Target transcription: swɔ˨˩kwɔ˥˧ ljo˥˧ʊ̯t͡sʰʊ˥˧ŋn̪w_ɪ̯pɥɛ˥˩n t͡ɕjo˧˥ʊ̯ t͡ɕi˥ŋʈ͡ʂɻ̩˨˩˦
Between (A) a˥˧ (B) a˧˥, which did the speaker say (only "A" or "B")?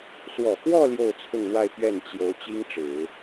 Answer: A